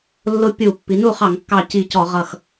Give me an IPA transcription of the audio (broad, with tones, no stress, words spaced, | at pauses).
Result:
lːʊ˦pʲu˧˩˧ pːi˩˧nu˥˩χɑ˧˩˧ŋkːɑ˧˩ ci˧˩cɔ˧˩˧ʁʌ˧˩x